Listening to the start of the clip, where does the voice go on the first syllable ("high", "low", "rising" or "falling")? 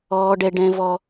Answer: high